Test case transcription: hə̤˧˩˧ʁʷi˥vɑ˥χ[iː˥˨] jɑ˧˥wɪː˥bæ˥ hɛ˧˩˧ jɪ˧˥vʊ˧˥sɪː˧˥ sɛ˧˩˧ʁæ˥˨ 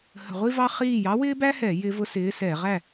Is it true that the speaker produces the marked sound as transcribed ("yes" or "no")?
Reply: yes